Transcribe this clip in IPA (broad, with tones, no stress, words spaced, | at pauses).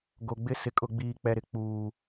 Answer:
ɡo˨ɡ͡bɪ˦ sɪ˨kʼʊ˨ɡ͡biː˨ k͡pɛ˨ ɾɪ˦ k͡puː˨